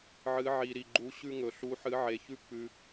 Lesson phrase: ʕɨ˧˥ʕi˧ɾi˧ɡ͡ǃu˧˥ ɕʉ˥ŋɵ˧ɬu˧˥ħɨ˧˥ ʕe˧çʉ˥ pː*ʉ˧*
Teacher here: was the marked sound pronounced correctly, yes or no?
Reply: yes